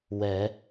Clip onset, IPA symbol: w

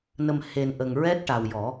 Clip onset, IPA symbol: n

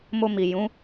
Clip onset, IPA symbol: m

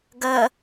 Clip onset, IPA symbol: ɡ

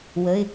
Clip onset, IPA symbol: w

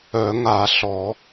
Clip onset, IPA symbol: œ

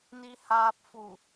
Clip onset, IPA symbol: n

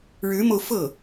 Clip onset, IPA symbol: ɻ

